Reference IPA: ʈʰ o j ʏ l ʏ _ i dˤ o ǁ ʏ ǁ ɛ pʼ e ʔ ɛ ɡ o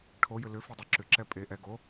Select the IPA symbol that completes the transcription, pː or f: f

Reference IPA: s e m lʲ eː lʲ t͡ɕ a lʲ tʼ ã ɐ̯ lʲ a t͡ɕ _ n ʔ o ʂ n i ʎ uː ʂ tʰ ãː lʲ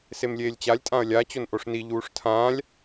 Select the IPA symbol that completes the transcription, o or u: o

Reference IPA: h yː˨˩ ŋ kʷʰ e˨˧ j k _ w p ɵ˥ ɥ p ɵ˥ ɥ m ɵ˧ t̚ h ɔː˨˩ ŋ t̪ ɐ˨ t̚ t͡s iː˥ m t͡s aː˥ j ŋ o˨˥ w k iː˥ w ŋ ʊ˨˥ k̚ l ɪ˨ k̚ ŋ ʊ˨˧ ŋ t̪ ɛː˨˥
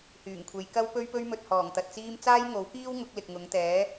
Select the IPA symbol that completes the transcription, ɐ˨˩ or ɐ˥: ɐ˥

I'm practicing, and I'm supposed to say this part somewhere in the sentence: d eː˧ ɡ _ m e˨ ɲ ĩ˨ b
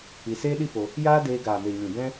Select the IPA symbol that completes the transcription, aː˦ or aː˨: aː˨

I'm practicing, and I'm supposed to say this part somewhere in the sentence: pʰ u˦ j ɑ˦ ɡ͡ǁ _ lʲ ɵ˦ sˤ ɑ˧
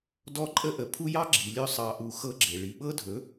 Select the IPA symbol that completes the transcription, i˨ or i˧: i˨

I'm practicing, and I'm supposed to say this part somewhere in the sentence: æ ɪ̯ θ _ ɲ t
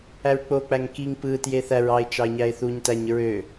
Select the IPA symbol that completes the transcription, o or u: u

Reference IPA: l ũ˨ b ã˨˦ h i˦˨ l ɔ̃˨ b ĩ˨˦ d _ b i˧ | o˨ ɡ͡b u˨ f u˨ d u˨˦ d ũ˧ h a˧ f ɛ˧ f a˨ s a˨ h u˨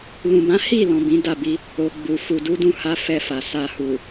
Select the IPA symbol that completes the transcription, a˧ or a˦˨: a˦˨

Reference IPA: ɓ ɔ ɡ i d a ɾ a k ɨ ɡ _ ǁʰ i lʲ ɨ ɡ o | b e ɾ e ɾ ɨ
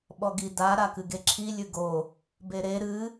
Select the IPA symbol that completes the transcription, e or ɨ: e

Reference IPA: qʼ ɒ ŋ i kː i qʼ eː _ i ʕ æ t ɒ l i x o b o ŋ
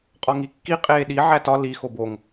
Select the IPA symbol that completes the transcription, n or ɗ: ɗ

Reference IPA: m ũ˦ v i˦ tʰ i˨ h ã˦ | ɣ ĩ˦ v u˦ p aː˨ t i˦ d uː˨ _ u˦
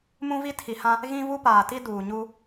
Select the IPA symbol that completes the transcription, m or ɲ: ɲ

